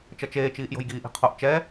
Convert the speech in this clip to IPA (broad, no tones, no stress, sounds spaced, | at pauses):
t͡ʃ ʌ t͡ʃ eː t͡ʃ iː ʔ j o̤ j ɡ iː ʔ i̤ qʰ o ʔ t͡ʃ ɛ